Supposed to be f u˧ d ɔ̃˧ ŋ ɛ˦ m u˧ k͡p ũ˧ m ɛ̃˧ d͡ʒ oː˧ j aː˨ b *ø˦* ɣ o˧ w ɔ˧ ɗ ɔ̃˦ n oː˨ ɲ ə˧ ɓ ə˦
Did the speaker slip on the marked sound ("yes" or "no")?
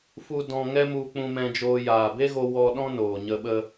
yes